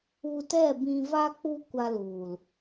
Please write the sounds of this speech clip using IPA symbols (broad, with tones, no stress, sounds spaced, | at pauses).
u˧ t ɛ˦˨ b ĩ˧ v a˦ k͡p u˦ kʷ a˧ l u˨ l